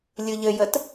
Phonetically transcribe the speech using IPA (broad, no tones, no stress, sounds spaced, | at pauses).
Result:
lʲ ɯ ʎ ɘ j ə t